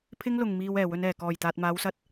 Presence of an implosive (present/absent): absent